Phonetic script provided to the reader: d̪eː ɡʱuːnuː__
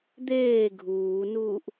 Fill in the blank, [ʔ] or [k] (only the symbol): ʔ